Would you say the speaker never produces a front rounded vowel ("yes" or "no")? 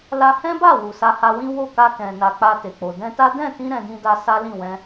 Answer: yes